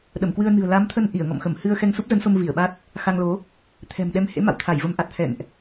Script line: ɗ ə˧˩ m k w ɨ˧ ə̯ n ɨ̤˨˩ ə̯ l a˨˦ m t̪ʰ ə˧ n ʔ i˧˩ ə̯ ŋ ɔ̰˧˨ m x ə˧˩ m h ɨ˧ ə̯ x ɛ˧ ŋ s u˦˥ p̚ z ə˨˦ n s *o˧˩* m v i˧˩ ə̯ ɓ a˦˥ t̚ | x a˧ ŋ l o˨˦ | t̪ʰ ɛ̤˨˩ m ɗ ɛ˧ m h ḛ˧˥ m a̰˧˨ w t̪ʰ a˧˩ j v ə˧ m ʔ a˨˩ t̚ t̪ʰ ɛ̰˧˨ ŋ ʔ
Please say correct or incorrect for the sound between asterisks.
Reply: incorrect